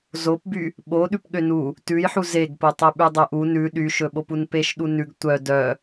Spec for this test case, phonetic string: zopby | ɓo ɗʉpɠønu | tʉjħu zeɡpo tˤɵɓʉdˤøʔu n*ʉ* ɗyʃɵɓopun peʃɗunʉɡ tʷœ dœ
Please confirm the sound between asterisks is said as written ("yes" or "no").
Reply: yes